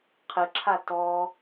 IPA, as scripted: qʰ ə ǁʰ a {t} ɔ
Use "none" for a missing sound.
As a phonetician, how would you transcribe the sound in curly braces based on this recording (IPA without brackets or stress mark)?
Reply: t